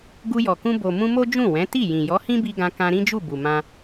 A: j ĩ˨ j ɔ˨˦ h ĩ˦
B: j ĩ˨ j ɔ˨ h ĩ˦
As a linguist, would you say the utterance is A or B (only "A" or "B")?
A